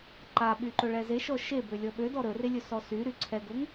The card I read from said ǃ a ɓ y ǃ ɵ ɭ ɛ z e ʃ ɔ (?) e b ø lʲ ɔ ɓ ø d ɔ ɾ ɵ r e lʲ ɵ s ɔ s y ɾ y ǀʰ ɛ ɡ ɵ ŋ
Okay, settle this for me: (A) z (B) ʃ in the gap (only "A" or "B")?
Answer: B